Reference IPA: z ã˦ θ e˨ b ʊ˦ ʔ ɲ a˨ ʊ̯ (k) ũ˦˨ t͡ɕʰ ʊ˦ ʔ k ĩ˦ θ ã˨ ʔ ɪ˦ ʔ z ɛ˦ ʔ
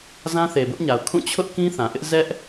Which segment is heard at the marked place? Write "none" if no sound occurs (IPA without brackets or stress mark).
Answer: kʰ